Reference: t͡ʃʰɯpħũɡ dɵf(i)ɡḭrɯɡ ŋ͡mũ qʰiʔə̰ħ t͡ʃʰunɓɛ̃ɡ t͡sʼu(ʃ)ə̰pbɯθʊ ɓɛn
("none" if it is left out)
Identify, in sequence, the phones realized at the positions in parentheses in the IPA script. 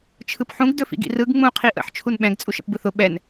ḭ, ʃ

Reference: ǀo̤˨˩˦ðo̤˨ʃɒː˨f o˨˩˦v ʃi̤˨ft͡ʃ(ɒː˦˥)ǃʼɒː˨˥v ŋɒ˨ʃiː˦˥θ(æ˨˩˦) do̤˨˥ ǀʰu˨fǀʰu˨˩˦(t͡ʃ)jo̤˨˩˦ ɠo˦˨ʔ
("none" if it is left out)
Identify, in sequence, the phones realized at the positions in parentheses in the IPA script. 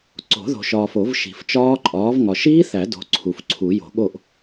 ɒː˦˥, æ˨˩˦, none

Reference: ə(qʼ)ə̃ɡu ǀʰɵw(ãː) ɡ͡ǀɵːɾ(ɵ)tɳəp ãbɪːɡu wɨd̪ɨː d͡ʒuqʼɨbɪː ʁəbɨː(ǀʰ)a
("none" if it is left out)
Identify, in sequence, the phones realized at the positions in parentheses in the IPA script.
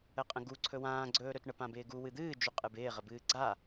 qʼ, ãː, ɵ, ɡ͡ǀ

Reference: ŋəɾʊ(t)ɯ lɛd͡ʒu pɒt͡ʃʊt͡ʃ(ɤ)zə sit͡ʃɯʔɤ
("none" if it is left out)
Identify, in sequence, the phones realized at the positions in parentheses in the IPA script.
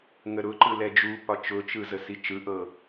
ǃ, ɯ

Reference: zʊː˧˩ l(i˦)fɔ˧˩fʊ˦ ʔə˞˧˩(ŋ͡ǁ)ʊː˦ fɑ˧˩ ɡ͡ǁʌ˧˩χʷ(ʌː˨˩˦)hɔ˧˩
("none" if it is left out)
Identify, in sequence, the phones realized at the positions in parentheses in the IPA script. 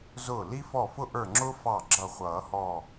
i˦, ŋ͡ǁ, ʌː˨˩˦

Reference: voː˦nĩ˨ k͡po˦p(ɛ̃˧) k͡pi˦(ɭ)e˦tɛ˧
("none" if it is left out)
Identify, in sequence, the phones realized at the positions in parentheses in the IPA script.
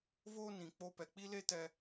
ɛ˧, l

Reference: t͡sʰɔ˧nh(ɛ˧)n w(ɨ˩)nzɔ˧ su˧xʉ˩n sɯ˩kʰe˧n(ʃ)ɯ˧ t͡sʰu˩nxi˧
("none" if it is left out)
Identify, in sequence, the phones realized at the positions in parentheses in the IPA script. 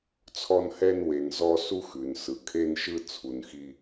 ɛ˧, e˩, ʃ

